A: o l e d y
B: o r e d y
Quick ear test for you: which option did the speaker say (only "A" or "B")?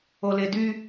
A